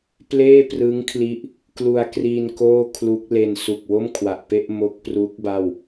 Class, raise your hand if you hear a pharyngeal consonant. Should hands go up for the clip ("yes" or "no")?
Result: no